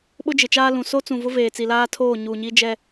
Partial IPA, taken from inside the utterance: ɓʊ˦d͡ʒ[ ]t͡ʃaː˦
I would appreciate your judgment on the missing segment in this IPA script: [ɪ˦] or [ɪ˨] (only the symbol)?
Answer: ɪ˨